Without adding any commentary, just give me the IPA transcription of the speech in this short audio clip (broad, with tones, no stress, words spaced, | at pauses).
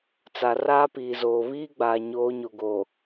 t͡sa˨ raː˦piː˨zoː˨ βiː˦ɡ͡baː˨ɲoː˨˦ ɲo˨ɡoː˨